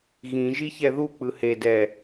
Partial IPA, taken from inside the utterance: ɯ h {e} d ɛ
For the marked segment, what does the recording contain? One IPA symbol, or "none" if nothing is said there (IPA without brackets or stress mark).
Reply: e